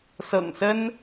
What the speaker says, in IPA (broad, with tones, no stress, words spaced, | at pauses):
sɤ̰˨˩ŋsə˦n